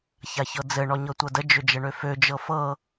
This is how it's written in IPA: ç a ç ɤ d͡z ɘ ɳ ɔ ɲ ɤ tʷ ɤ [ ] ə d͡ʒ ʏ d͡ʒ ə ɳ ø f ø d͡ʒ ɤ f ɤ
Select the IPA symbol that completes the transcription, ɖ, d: d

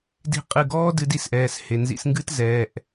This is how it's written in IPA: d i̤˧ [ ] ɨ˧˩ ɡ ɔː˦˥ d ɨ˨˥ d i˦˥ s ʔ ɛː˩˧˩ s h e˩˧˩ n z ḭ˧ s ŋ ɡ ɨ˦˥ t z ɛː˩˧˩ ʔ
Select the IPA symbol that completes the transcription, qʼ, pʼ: qʼ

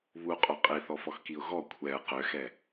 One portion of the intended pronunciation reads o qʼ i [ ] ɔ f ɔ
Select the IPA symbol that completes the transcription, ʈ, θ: θ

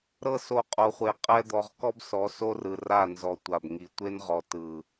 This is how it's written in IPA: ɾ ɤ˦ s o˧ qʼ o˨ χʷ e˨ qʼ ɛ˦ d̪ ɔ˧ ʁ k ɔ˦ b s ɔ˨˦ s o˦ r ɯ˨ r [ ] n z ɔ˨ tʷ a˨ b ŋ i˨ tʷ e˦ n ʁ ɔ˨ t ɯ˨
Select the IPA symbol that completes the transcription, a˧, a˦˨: a˦˨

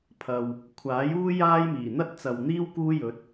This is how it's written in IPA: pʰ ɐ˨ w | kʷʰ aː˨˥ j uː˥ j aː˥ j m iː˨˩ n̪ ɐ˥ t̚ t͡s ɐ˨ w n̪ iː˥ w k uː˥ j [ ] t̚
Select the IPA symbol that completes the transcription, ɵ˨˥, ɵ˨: ɵ˨˥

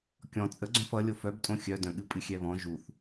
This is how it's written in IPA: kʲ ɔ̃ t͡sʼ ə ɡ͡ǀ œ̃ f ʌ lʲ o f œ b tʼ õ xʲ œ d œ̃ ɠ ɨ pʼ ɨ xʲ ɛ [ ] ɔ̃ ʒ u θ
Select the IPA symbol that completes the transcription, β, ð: β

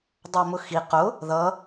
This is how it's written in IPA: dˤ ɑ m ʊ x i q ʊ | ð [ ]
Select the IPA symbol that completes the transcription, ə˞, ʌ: ʌ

